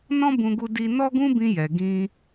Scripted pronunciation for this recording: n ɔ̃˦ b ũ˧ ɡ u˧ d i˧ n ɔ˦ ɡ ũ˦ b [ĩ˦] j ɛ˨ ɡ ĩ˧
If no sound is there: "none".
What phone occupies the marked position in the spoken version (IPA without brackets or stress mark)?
ĩ˧